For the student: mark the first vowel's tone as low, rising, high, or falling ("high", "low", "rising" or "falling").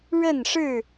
falling